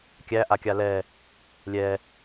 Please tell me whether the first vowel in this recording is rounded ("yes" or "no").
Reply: no